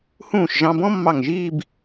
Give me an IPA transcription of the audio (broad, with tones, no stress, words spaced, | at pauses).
hũː˧˩ʃ ʒɑ̃˧bɔ̃˥ mːɑ˧˩ŋʒiː˥˧b